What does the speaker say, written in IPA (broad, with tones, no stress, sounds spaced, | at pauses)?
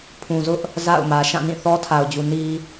pʰ ũ˨ z ʊ˦ ʔ | z a̰˦˨ ʊ̯ m ä˨ ʃ ã˦˨ n ĩ˦˨ θ ɔ˦ tʰ a˨ ʊ̯ d͡ʑ u˨ n i˨